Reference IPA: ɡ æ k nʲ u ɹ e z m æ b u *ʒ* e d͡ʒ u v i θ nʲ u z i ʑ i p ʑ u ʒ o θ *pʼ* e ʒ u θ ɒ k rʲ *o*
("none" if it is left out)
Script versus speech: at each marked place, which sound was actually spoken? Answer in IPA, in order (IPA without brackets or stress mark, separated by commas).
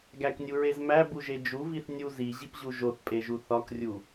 ʒ, pʼ, u